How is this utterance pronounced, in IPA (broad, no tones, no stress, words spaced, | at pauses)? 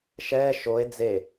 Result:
ʃɛː ʃoe̯ d͡ze